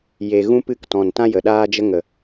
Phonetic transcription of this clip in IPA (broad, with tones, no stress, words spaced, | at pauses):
je˧ɣũ˦pɨ˦˨k tɔ̃˨ntã˦ jə˨ɗaː˦d͡ʒə˦ ŋə˨